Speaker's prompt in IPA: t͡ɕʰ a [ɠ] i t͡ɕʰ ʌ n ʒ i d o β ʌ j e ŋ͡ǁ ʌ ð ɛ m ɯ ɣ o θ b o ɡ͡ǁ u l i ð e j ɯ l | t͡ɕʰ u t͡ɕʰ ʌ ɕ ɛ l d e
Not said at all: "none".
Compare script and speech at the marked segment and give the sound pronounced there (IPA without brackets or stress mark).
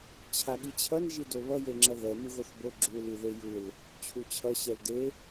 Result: ɠ